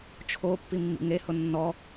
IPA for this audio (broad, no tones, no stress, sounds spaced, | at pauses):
t͡ʃʰ o pː i mː ḭ ŋ e h ʊ nː ɔ